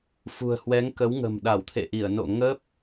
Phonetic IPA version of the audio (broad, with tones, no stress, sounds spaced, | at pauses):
f ṳ˨˩ ə̯ h w ɛ˨˦ ŋ k ə˨˦ w ŋ ə̤˨˩ m ɗ a˧˩ w t̪ʰ ḛ˧˨ ʔ i˧˩ ə̯ n o̰˧˨ ŋ ə˦˥ p̚